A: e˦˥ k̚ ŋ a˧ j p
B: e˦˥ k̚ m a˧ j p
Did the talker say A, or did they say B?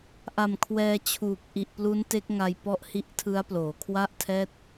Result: A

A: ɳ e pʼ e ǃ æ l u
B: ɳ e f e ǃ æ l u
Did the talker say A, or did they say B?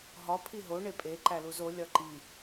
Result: A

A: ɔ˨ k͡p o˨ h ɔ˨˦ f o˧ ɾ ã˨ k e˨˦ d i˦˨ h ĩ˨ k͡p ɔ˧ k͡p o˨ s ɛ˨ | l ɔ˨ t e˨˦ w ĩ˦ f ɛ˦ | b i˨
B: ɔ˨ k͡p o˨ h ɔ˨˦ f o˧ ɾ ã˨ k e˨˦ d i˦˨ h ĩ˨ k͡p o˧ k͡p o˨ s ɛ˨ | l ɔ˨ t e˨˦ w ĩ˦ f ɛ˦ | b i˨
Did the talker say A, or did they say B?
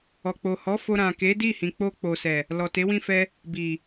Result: B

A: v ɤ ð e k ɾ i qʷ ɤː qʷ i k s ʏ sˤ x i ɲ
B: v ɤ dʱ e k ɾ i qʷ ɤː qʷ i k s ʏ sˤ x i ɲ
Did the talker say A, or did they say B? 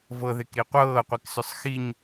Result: A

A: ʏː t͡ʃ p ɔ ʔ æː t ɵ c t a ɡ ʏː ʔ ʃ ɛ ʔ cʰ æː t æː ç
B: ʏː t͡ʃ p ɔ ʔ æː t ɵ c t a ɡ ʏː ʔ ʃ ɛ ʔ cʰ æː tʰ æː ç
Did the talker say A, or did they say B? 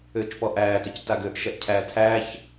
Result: B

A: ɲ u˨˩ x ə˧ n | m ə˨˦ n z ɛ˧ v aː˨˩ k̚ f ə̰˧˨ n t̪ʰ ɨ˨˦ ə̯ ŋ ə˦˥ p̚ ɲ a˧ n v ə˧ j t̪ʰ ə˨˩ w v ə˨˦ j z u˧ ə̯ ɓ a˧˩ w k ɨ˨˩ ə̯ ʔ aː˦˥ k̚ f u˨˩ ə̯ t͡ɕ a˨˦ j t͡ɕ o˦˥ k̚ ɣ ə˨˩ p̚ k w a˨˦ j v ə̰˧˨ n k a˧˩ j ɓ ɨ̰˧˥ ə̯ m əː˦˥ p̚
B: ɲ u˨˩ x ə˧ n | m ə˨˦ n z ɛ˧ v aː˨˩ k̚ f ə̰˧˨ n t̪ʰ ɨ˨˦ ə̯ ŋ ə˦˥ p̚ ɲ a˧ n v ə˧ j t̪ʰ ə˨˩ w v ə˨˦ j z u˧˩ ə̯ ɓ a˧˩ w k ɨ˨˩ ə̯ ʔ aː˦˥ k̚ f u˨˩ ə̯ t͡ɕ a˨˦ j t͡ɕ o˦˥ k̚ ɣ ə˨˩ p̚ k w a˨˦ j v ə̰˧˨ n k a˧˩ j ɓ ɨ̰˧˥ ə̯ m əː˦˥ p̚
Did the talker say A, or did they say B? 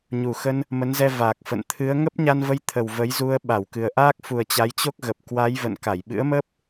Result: A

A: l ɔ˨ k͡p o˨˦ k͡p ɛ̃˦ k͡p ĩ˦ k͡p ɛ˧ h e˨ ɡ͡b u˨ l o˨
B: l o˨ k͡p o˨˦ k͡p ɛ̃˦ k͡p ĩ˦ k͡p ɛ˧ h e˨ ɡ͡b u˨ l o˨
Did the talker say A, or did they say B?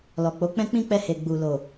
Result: A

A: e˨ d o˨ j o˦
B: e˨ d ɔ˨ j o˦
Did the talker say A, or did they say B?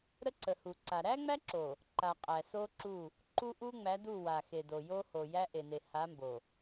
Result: A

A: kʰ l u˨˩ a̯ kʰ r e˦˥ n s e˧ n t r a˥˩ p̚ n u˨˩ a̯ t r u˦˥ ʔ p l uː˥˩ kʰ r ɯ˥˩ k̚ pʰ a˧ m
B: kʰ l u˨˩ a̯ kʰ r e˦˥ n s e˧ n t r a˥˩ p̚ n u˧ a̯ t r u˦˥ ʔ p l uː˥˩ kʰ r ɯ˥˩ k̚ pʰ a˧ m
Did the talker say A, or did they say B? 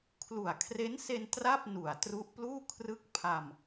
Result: A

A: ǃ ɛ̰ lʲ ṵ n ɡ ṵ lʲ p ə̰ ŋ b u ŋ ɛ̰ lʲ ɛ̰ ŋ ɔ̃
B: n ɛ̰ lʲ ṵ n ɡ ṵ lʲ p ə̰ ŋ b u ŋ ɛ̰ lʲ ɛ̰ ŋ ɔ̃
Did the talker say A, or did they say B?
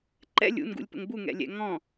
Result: A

